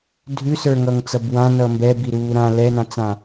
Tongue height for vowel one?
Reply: high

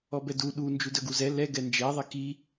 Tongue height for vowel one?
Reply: mid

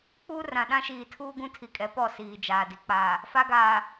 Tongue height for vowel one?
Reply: high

